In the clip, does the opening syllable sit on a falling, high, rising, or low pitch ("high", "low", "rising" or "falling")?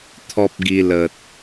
high